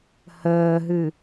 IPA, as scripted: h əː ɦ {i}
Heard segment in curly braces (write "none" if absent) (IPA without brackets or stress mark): ɨ